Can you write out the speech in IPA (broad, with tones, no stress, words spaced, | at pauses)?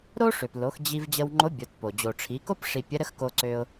ɾo˥ʂø˩plo˩˧x d͡ʑi˧v d͡ʑə˧wŋ͡ǃo˧˥bʲo˩˧tpo˩ d͡ʑo˩ʈ͡ʂʰi˩˧ko˥p ʂi˧ pʲə˧˥ ɾə˧˥xko˧ǀø˧ʊ̯